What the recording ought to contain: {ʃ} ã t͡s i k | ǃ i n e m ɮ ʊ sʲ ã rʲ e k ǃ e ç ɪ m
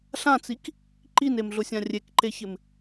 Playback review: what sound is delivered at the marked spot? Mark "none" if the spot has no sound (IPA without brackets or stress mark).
ɬ